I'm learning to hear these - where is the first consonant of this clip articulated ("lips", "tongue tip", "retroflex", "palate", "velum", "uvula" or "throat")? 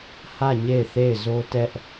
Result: throat